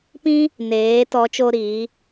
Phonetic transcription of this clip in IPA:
pĩ˦ | neː˨˦ tɔ˨˦t͡ʃo˧ ɾiː˨˦

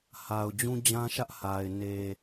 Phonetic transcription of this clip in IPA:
ha˨ʊ̯d͡ʑũ˦d͡ʑã˦ʃä˦ʔ ha˨ɪ̯ ne˨

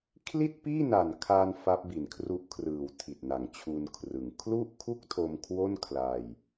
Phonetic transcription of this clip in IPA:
kʰli˥˩t̚piː˥˩na˨˩nkʰaː˧n fa˦˥p̚bi˩˦nkʰru˦˥ʔkʰrɯː˨˩w tʰi˨˩t̚na˨˩ŋt͡ɕʰu˧nkʰrɯ˩˦ŋ kʰlu˥˩ʔkʰu˥˩k̚tʰo˧m kʰwo˥˩nkʰla˧j

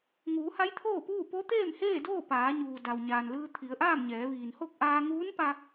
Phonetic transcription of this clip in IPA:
ŋuː˩˧ha˧˥jt̪ʰoː˥˨puː˥˨ po˧˥t̪eː˥˨mheː˥˨doː˥˨ paː˩˧ɲuː˩ da˩wɲaː˩nlɯː˧ t̪ʰi˩˧ə̯ʔaː˥˨mɲɛː˩˧ ʋiː˩nho˥˨k̚ʔaː˧ ŋuː˧˥npa˧

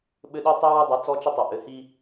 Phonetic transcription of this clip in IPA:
ɓɘ˦ɗi˦ tˤi˦wʊ˦dˤɛ˨˦ t͡sɔ˦t͡ʃə˦tˤɘ˨ ʔɘ˨hi˦

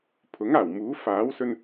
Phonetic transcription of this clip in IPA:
pʰʊ˨˥ŋaː˨˩wmuː˨˥ faː˨˥wsɵ˧n

